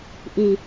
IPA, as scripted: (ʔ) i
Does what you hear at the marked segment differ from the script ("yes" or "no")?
no